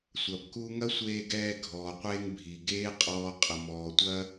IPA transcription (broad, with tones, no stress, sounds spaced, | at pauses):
sʷ ɐ˨ b k u˦ ŋ ɐ˦ sʷ eː˧ ɡ ɛː˧ ɡʱ ɔː˨ qʷ eː˧ ŋ bʱ i˨ ɡ eː˦ qʼ ɔː˧ qʼ ə˨ m ɔː˨ tʷ ɐ˦